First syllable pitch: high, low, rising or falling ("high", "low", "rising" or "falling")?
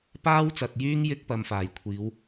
high